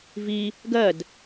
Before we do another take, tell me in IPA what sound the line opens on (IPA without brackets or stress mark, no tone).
v